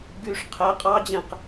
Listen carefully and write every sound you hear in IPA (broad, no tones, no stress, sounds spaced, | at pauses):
ɡ y ʂ qʰ ɛ qʼ ɑ d͡ʑ ɛ̃ q